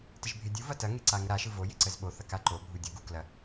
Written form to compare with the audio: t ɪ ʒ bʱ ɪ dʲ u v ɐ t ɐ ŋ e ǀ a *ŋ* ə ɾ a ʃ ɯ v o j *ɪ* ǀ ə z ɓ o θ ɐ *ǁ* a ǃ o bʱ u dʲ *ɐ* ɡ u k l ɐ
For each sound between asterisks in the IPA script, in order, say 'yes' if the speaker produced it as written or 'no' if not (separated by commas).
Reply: yes, yes, no, yes